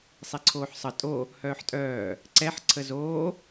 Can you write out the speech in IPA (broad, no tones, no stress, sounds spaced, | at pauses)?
sˤ i ǀʰ oː ħ sˤ ə tʼ o | h œː ħ tʼ œː | ǀ ɛ ħ ǀʰ ə z oː